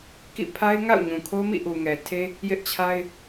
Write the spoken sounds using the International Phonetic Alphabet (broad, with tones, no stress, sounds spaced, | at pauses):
k ḭ˦˨ pʰ a˦ ɪ̯ ŋ a̰˦˨ ʊ̯ ɲ ũ˨ kʰ o˦ m ḭ˦˨ ʔ u˨ ŋ ɛ˨ tʰ e˦ | j ɪ˦ ʔ t͡ɕʰ a˦ ɪ̯